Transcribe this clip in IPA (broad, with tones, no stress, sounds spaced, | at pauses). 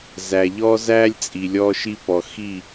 z æ˨ ʎ ɔ˦ z æ˦ lʲ t͡sʼ i˨ lʲ ɔ˦ ʃ i˦ p ɔ˨ x i˦˨